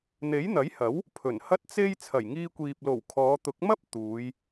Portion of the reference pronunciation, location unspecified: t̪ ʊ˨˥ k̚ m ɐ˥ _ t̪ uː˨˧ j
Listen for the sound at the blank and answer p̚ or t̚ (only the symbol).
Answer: p̚